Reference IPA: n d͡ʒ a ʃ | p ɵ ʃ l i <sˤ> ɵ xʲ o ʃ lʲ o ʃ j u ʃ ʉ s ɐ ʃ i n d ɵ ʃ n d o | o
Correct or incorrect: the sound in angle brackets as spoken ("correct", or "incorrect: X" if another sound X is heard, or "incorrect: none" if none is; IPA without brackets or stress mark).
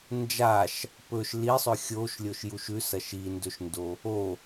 correct